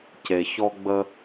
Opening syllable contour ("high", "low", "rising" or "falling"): low